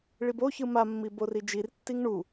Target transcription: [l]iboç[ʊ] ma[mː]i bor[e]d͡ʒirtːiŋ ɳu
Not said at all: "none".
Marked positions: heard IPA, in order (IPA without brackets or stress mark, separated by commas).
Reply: ɭ, ɯ, mː, i